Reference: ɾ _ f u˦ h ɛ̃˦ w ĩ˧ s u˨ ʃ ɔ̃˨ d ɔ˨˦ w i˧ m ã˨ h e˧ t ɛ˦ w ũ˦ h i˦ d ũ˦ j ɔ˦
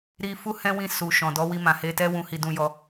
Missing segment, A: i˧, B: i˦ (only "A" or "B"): A